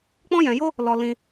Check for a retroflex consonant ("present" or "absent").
absent